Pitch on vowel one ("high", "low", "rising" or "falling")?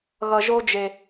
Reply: low